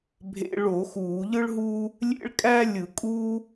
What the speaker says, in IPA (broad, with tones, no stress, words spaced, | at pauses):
bʱḛ˧˩˧ɭo˧˩˧ xuː˧˩˧ʎɯ˥ɭɦuː˥ | lʲḛ˥ɭ kʼæ˥lʲɯ˧˩˧kʼuː˥